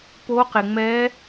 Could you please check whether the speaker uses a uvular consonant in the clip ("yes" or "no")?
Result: yes